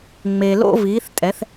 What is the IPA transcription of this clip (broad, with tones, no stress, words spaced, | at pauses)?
ŋ͡me˩lo̰˧viː˩˧θ tʼɛ˩˧θ